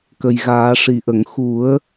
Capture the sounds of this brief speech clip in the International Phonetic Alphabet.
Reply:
k ə˨˩ j ɣ aː˨˩˦ ʂ i˨˩ ʔ ə˨˩˨ ŋ x u˨˩˦ ə̯

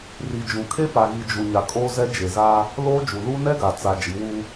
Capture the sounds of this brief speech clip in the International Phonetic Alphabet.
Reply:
r i˨ d͡ʒ ũ˨ kʰ e˦ p a˨ ɣ i˨ d͡ʒ u˨ ɲ a˨ kʼ oː˦ z ɛ˦ d͡ʒ e˨ z aː˦ | l oː˦ d͡ʒ u˨ l uː˦ n ɛ˦ ɡ a˨ t͡s a˨ d͡ʒ i˨˦ w uː˦

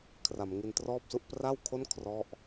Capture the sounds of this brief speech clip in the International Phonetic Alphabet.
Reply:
kʰ r a˩˦ m ŋ i˧ n t r ɔː˥˩ p̚ s u˥˩ ʔ p r a˥˩ w kʰ o˥˩ n kʰ r ɔ˥˩ ʔ

